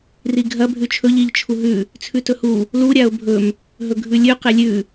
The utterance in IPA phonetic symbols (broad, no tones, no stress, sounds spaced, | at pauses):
r i ɡʱ ɐ bʱ ʉ t͡ʃʰ ɵ ʎ i ʎ t͡ʃʰ u ɦ ʉ | t͡sʰ ʉ t ɵ h u | l u ɾʲ a ʊ̯ bʱ ɵ m | ɦ ɵ ɡʱ ʉ lʲ ʉ q e lʲ ʉ